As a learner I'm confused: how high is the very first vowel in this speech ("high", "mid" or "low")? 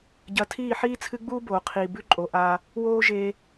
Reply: low